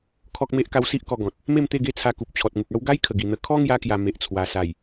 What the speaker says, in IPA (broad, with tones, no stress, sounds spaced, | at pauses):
kʰ ɔ˦ k̚ m e˦ ʔ k a˦ w s i˦ ʔ k ɔ˧ ɡ ɔ̃˨ t̚ | m e˥˧ m t̪ e˥˧ ɡ e˥˧ t͡sʰ a˧ k u˨ p̚ t͡ɕʰ ɔ˨ t̚ ŋ u˨ k̚ a˦ w ɡ a˦ j kʰ ə˨˩ ɡ i˨˩ n̪ ə˧ kʰ ɔ˦ ŋ j a˧ k j a˨˩ m e˨ ʔ t͡sʰ w a˨˩ s a˨˩ j